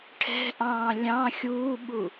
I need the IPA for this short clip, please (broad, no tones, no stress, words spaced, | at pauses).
ʈʰɛ̤ʔɑ̃ː lʲɑ̃ xʲuːɓu